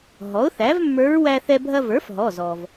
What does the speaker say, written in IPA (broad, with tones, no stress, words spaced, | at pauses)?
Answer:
ɦɔ˩˥ʊ̯θæ˩˥vmːə˞˧˥ɹ wæ˧θɛ˧ bʱɐ˧və˞˩˥f ɦɔ˩˧˩zɔ˩v